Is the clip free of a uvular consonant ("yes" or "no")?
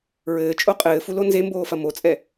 no